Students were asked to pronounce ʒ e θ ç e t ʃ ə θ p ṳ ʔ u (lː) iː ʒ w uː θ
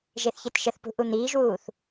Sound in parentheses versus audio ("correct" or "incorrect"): incorrect